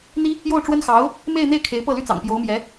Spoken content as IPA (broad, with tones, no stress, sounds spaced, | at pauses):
n̪ i˥ | j o˥˩ ʊ̯ ʈ͡ʂ w ə˥ n x ɑ˧˥ ʊ̯ | m e˥˧ ɪ̯ n̪ e˥˩ ɪ̯ kʰ e˧˥ ɪ̯ p ɤ˥˩ l y˥ t͡s ɑ̰˨˩ ŋ p j o˧˥ ʊ̯ m j ɛ˧˥